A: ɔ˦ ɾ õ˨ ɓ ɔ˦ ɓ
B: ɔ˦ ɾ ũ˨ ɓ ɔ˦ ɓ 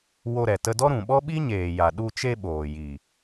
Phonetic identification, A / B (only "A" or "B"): B